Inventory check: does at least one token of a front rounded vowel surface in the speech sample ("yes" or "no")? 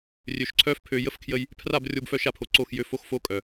yes